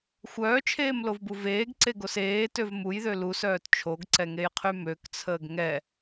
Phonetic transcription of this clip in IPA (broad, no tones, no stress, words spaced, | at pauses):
xʷœːt͡ʃʰeːmlovbu veːɡǀeɡos eːtøv mujðø lusœːt t͡ʃʰoɡǀɛŋejqʰy møkt͡sʰəːɡ ŋɛ